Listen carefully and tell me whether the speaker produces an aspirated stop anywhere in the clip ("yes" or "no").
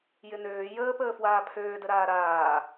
yes